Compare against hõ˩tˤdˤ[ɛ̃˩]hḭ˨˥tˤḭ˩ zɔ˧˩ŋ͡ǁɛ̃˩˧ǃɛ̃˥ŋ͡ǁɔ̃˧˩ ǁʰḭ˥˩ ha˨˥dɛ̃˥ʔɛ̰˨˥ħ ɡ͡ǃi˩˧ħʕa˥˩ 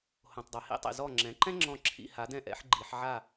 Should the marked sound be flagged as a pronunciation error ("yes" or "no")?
yes